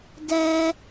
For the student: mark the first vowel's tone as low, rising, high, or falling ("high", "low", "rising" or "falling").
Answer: high